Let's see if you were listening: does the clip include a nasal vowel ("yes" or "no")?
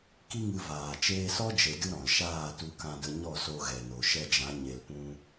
yes